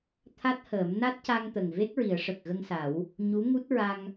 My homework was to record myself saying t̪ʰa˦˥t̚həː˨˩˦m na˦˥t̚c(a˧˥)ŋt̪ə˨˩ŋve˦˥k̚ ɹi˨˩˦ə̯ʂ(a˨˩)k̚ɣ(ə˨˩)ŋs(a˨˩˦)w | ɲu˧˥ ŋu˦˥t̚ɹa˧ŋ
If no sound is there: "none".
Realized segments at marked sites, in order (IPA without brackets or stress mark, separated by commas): a˧, ə˨˩, ə˧, a˨˩˦